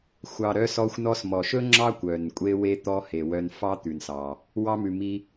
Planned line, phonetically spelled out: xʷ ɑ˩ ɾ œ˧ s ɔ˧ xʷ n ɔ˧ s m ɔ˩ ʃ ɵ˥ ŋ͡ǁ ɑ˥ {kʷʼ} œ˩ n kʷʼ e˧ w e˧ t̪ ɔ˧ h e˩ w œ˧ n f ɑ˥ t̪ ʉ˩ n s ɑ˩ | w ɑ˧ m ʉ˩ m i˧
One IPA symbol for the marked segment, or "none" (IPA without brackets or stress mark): kʷ